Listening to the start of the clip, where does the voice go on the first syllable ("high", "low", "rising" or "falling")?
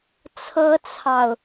high